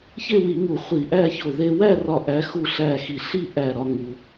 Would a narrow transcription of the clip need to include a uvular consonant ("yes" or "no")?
yes